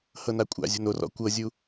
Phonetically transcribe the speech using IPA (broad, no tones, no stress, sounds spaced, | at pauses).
h ɤ n a kʷʼ a̰ zʲ o̤ n o r ɔ̰ kʷ ɤ zʲ u